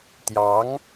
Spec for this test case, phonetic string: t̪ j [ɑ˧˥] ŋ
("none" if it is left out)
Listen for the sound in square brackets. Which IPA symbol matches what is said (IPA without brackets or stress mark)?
ɑ˧˥